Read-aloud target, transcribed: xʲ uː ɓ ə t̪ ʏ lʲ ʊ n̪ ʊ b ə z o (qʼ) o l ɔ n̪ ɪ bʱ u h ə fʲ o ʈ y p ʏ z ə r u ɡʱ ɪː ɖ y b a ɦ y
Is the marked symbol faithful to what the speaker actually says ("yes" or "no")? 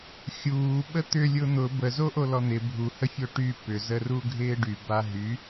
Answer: no